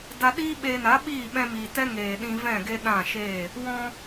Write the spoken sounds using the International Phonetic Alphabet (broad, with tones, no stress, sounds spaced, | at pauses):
d a˧ ɗ iː˦ ɓ eː˧ n a˨˦ ɓ iː˦˨ ɓ ɛ̃˧ m iː˨ t ɛ˦ ŋ eː˨ ɗ ĩ˧ v ɛ̃˦˨ ɡ e˧ ɗ ã˦˨ ʃ eː˦˨ | w ɔ̃˧